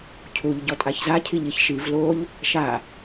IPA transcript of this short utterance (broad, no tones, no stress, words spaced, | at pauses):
cʰuʎ ɟɔtʼaçza cʰiʎiçʃiv loʎ | ʃa